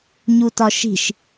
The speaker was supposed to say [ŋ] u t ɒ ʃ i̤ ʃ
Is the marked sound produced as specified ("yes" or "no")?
no